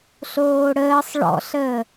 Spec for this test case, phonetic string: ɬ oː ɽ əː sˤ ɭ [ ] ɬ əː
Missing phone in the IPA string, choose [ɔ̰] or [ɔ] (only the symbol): ɔ̰